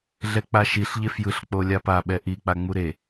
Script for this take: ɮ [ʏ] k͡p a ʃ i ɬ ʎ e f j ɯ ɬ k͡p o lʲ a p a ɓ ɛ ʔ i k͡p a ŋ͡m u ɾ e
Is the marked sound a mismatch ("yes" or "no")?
yes